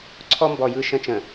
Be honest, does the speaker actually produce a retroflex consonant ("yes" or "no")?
no